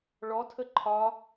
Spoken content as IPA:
ɭɔtʰə ǃʰɒ

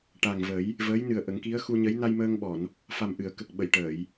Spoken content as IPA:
ʈa˨˩ŋvə˨˩˦j | vəː˧˥jnɨ˨˩ə̯ʔə˨˩˦ŋki˧˥ə̯ xu˧ɲə˧˥j na˧jməː˧ŋɓɔ˨˩˨n | fa˨˩mʔɨ˨˩˨ə̯kə˨˩k̚ɓə˨˩˨j ʈəː˨˩˨j

